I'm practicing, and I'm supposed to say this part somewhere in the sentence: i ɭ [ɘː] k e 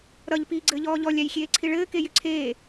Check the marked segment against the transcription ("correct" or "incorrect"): correct